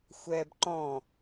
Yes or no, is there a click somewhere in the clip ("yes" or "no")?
yes